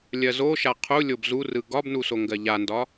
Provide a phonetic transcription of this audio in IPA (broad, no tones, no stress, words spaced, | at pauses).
lʲɜzoʃa qʰu lʲobzurɯ ɡɒbnu soŋɡɜʎandɒ